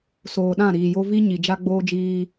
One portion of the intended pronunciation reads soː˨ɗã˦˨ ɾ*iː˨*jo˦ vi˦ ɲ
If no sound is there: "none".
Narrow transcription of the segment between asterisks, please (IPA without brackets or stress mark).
iː˨